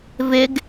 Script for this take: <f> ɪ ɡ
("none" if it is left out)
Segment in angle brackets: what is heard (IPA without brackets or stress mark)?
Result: v